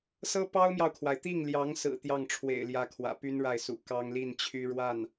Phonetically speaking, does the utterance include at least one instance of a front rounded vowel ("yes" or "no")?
yes